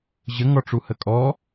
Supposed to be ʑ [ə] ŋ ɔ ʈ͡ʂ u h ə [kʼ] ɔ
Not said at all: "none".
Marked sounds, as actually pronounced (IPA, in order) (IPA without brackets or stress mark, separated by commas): ə, kʼ